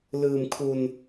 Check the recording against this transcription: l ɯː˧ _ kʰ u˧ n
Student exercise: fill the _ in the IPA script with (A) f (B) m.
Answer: B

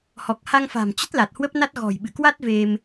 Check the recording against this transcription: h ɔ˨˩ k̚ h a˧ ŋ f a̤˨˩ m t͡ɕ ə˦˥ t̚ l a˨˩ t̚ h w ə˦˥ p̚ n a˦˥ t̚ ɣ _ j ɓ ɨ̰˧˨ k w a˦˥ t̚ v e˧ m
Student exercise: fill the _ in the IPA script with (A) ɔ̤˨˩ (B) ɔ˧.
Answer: A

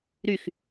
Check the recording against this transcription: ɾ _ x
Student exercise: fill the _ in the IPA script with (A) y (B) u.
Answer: A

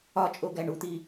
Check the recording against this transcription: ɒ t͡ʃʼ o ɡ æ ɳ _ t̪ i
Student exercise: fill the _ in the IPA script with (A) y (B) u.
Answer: B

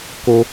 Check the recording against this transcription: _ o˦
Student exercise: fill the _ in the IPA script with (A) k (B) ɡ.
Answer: A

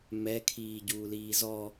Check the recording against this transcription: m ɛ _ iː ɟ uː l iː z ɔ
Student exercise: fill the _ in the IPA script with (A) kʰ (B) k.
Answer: A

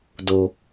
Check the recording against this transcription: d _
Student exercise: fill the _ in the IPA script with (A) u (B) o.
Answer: B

